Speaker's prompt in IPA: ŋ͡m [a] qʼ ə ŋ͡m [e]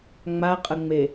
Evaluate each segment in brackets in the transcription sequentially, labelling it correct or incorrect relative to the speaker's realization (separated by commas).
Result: correct, correct